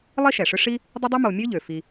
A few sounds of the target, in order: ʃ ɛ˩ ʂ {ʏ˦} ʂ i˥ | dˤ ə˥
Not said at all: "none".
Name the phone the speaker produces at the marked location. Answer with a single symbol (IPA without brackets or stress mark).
ʏ˦